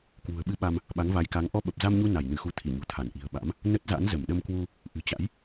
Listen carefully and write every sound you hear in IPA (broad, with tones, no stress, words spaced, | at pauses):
kwṳ˨˩ə̯ɓɨ˧ɓa˧m | ɓa˨˦ŋva˨˦jka˨˦ŋ ʔɔ˧ɓə˨˩p̚ za˧mɲu˧ na˧˩jnɨ˧˩xu˨˦ t̪ʰi˧˩ɲṳ˨˩t̪ʰa˧˩nʔi̤˨˩ə̯ ɓa̰˧˥m | nə˦˥t̚za̰˧˥n zə˧˩mɗə˧mkwu˧ | ʔɨ̤˨˩t͡ɕa̰˧˥j